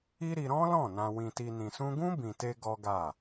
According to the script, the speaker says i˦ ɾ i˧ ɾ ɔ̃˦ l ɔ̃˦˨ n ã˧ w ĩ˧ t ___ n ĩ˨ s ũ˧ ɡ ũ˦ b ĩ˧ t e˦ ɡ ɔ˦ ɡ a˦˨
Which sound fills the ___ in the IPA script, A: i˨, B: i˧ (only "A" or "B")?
B